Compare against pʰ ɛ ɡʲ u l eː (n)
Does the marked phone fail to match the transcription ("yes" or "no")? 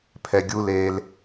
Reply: yes